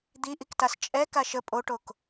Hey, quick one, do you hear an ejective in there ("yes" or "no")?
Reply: yes